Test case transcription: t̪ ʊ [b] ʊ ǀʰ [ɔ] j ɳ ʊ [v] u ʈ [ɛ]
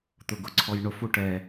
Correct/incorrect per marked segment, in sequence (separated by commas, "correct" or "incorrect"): incorrect, correct, incorrect, correct